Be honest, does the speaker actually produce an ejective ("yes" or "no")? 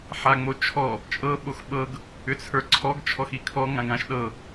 yes